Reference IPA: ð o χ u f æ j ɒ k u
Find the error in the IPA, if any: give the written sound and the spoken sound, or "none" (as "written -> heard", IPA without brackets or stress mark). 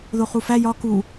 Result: none